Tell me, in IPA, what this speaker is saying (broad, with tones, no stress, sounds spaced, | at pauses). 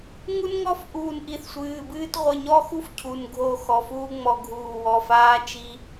ŋ u˦ n ŋ ɔ˦ f ʔ uː˧˩ n ʔ i˧˩ θ sʷ ɨː˩˧˩ b ɨː˦ t ʁʷ ɨ˩˧˩ ɲ ɔ˦ x u˦ f cʰ u˩˧˩ n ɡʱ o˧˩ x ɔ˩˧˩ f uː˦ ŋ͡m ɔ˧˩ ɡʱ uː˧˩ w ɔ˩˧˩ f aː˦ t͡ʃ i˦